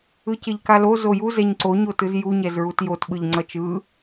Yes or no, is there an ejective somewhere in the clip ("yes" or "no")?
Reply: no